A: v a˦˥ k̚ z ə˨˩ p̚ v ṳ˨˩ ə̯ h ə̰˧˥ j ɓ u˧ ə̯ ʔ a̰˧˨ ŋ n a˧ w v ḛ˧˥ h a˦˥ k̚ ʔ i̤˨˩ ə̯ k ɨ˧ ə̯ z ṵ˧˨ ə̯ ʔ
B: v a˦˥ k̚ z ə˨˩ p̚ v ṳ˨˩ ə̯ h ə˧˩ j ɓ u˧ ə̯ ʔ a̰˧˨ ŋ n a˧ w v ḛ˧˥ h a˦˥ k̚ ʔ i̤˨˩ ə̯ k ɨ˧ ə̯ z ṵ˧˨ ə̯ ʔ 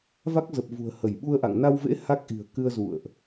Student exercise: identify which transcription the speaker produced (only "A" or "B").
B